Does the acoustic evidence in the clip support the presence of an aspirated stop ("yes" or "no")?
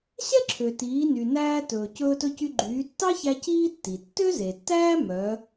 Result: yes